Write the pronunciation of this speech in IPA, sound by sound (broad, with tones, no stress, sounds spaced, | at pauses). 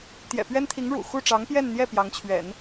t̪ j ɛ̰˨˩ p ɥ ɛ˥ n t̪ʰ i˧˥ ŋ ɻ ṵ˨˩ x u˥˩ ʈ͡ʂ ɑ˧˥ ŋ p j ɛ˥˧ n n̪ j ɛ˥˩ p j ɑ˧˥ ŋ t͡ɕʰ ɥ ɛ̰˨˩˦ n